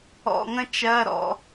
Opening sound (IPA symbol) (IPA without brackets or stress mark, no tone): ɔ̰